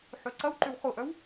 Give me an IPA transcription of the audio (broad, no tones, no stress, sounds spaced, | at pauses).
ħ ø ǀ ɐ w ǃ ʏ w χ ʊ ʔ œ w